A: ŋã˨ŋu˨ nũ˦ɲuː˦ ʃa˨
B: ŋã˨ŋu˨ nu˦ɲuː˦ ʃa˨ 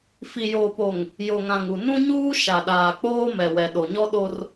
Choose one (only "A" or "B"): A